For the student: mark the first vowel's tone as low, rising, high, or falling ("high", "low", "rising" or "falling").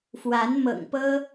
rising